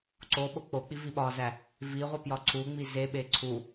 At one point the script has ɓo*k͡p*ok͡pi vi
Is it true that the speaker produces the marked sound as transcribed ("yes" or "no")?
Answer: yes